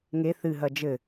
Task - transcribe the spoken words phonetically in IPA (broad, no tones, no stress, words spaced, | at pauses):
ŋe θɨɦɐ d͡ʒɘ